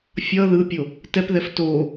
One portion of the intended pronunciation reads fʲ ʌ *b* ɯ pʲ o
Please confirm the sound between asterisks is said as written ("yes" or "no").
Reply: no